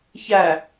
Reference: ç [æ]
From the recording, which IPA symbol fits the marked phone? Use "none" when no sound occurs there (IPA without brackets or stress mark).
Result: æ